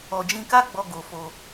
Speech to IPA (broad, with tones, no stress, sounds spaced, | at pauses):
ɔ˨ d͡ʒ ĩ˧ k a˦ ɡ͡b ɔ˧ ɡ o˨ f o˧